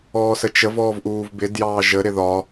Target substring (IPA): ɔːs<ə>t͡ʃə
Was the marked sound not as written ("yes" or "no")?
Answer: no